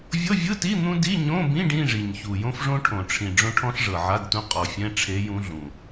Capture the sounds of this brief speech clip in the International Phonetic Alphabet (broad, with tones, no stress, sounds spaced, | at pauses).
vʲ ɤ˧˥˧ vʲ ɯ˧˥˧ t i˧˥˧ n̪ ũ˥ d i˧˥˧ ɲ õ˧˥˧ b ĩ˧˥˧ ɖ ĩ˧˥˧ ʐ i˨˩ ɲ ç u˨˩ j õ˥ f ʐ õ˥ ʈʰ õ˨˩ ʈ͡ʂʰ ĩ˨˩ ɖ͡ʐ õ˥ ʈʰ ɔ̃˥ ɬ ʐ ɤ˨˩ ʕ a˧˥˧ d t ũ˧˥ qʼ ɔ˨˩ fʲ ɛ̃˧˥˧ ʈ͡ʂʰ e˧˥ j ũ˧˥ ɮ ũ˨˩